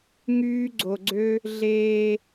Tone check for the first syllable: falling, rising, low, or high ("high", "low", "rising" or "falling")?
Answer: high